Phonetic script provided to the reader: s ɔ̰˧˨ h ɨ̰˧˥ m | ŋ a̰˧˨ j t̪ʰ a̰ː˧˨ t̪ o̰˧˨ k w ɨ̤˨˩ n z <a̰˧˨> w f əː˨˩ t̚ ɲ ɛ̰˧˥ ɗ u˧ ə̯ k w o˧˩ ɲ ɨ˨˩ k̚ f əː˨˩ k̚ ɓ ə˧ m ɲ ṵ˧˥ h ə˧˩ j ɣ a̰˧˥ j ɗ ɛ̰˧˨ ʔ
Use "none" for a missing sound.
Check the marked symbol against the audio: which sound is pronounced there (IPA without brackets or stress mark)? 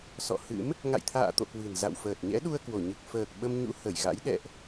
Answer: a̰˧˨